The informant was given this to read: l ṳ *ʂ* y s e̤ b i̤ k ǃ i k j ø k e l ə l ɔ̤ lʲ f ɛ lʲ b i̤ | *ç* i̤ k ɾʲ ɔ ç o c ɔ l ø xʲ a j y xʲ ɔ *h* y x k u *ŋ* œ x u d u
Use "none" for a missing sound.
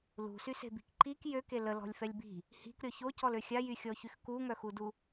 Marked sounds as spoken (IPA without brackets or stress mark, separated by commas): s, h, ç, ŋ